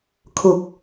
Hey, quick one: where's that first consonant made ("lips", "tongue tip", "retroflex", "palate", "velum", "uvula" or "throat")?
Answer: velum